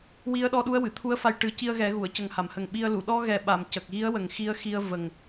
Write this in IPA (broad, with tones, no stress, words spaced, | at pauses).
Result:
wi˧˥ə̯ɗɔ˧ ɗu˧˥ə̯wɨ˨˩˨t̪ʰu˧˥ə̯fa˧j ʈɨ˨˩˦ ci˧ə̯ɣɛ˨˩˦ɣu˨˩˨ə̯cə˨˩ŋ ha˨˩˨mhə˨˩ŋɓi˧ə̯ lu˨˩˨ ɗɔ˧ɣɛ˨˩ɓa˨˩˨m cə˨˩k̚ɣi˧˥ə̯wə˨˩ŋ xi˧ə̯xi˧ə̯ və˨˩ŋ